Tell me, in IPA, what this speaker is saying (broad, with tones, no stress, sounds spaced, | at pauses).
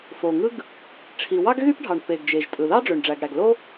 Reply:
f o˩ ŋ ɯ˥ ɡ | ʈ͡ʂʰ i˩ w ɑ˥ ɡ ɣ y˥ p ɖʱ ɑ˩ ɳ p e˩ ɡ d͡ʒ e˩ ʒ tʼ ɯ˩ ð ɑ˥ ɖ͡ʐ ø˩ ɳ ɖ͡ʐ æ˩ ɡ ɽ æ˩ ɡ l o˥